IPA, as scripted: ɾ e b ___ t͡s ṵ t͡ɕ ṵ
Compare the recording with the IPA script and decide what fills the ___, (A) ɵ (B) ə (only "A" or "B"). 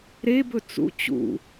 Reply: A